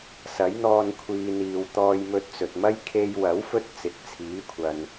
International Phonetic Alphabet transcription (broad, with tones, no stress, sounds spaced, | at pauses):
s ɐ˨˥ j n̪ ɔː˧ n kʷʰ iː˨ n̪ iː˨ w t̪ ɔː˧ j m ɵ˧ t̚ t͡s ɵ˨ t̚ m ɐ˥ j kʰ e˧ j w ɐ˨˥ w f ɵ˥ t̚ t͡s ɪ˨˥ k̚ t͡sʰ iː˨˥ kʷʰ ɐ˨ n